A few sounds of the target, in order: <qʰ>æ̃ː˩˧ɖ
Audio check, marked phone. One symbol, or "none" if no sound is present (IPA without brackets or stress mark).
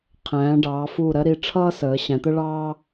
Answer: qʰ